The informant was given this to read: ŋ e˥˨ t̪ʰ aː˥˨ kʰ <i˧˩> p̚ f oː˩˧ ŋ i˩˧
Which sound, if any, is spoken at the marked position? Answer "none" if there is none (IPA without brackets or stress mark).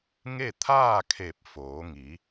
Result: e˧˩